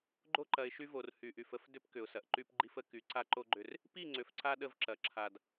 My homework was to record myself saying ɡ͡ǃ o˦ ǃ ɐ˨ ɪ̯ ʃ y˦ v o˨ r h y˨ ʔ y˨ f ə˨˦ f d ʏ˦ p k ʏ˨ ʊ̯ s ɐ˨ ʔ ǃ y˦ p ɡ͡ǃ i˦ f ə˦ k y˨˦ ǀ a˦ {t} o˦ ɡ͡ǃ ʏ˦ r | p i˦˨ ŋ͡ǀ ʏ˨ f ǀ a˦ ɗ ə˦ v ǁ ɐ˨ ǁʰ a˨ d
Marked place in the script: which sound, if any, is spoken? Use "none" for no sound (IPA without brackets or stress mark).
ǃ